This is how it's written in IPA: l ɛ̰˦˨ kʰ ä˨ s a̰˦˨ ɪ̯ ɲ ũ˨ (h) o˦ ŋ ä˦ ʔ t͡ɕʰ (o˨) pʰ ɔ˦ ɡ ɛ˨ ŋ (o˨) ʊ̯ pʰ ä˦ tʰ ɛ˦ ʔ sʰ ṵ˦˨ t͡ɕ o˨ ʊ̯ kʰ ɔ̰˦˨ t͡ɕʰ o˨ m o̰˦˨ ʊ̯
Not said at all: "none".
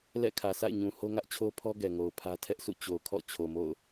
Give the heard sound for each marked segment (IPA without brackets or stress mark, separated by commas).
h, o˦, o˨